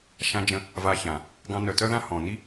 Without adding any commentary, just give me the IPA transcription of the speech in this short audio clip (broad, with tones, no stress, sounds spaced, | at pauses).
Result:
ʃ ã˧ d͡ʒ ə̃˧ | v a˧ ç ã˨ | ɡ ɑ̃˧ n œ˨ t œ˦ ð ã˦ h ɔ̃˨ n i˦